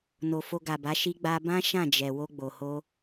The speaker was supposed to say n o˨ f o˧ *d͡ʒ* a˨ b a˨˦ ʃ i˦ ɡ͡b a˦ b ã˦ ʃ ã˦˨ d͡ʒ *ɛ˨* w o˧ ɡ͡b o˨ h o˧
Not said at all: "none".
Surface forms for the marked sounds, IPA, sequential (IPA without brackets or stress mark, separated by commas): ɡ, ɛ˨